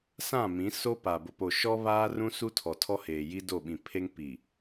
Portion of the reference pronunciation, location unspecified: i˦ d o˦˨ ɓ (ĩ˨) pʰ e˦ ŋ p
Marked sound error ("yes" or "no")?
no